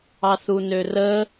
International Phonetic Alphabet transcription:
ɑθunørə

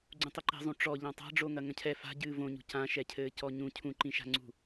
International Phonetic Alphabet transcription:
ɡ͡ǀũtˤɘǃi̤zˤũ ʈ͡ʂɔʎã tˤa̤ɖ͡ʐoŋɐ ŋɐ̃cʰɛ fa̤ ɟɨːvõɲṳ cãʃɛcʰɘː cɔɲũ cʰũǃĩʃa̤ŋ͡ǀṳ

